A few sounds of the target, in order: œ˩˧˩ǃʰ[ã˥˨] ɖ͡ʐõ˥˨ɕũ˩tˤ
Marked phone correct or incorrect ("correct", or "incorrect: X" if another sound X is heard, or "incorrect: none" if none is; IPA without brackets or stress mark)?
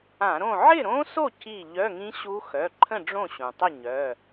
incorrect: ə̃˥˨